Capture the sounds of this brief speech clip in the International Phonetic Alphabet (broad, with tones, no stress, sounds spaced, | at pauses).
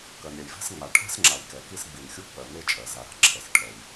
k ɜ˩ n ɾʲ ɛ˩ j v ɛ̤˧ s ŋ͡m a˩ ʈʰ ɛ̤˧ s ŋ͡ǁ a˩ j k ɛ˩ k i˧ s ɡ͡b i˩ n xʲ u˧ k͡p ɜ˩ n e˧ t͡ʃʼ ɜ˩ z a˩ ɾ a̤˧ ǁʰ ɛ˩ s ʈʰ ɛ˩ j